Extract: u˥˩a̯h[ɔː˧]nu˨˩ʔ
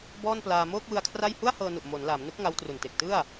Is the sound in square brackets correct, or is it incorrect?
incorrect